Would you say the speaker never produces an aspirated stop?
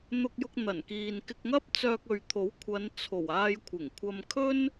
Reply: no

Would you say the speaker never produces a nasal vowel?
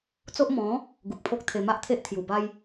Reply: no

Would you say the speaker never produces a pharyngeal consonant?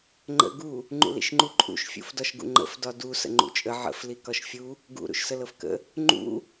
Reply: no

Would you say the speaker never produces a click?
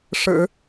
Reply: yes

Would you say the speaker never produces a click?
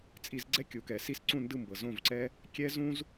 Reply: no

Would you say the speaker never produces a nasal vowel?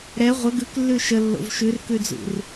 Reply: yes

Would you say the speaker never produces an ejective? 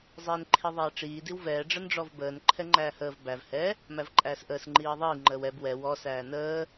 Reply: no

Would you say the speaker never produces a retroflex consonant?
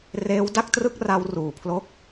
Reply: yes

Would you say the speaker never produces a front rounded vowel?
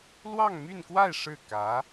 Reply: no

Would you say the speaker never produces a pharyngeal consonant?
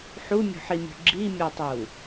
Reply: no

